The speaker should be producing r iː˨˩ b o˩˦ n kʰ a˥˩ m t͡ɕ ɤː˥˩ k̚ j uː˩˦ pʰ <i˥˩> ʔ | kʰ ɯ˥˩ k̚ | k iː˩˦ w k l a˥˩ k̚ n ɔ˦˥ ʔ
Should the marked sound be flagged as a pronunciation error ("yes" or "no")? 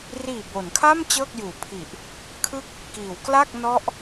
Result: yes